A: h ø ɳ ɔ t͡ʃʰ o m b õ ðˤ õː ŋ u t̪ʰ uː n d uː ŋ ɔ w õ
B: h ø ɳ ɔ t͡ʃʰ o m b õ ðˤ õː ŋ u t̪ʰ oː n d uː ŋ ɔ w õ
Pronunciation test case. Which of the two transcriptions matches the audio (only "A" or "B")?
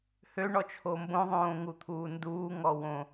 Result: A